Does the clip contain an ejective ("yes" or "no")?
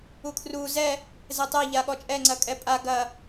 yes